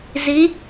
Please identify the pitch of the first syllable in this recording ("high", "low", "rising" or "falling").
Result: rising